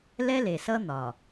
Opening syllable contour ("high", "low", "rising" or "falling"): high